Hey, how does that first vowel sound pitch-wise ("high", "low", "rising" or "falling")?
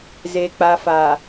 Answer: low